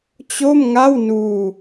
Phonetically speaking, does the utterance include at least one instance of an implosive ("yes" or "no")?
no